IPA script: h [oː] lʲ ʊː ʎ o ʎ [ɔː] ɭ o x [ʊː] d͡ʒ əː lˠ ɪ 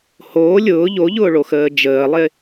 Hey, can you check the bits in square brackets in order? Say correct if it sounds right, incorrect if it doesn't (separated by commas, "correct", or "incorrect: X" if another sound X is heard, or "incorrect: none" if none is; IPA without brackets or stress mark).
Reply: correct, incorrect: ʊː, incorrect: əː